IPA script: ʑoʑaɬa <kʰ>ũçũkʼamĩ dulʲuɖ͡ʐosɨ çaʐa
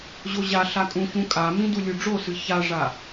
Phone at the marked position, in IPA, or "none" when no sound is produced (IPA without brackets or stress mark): kʼ